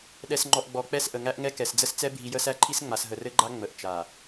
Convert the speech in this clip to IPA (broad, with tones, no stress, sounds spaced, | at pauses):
ɗ ɛ˨ s ŋ͡ǃ ɔ˨ ʔ ɡ͡b ɔ˨ k͡p ɛ˦˨ s ʔ ə˨ ŋ æ˦ ʔ ŋ ɛ˦ k ɛ˨ s d͡z ə˦ s t͡s ɛ˦ bʱ i˨ j ə˦ s æ˦ ǃʰ i˦ s ŋ͡m a˨ s ɦ ə˨ r ɘ˦ ɡ͡ǃ a˦ ŋ͡m ə˨ ʔ t͡ʃ a˨